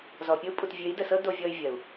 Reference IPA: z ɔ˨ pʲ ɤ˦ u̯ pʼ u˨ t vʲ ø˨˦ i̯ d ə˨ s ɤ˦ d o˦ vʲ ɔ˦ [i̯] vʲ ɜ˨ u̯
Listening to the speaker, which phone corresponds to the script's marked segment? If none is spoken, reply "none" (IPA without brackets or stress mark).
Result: y̯